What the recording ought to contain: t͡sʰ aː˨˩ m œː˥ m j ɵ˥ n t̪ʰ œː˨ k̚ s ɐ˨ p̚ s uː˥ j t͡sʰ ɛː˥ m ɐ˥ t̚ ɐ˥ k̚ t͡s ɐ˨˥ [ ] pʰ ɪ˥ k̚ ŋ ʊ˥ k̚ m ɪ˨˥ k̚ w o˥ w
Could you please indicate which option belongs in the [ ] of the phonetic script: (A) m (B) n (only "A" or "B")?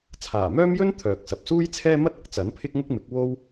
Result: B